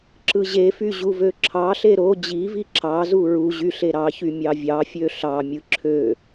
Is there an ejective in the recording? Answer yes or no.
no